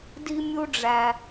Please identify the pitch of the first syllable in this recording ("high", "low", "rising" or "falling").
high